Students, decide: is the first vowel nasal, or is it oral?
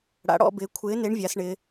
oral